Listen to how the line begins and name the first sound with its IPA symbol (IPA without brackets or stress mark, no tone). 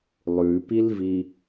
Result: lˠ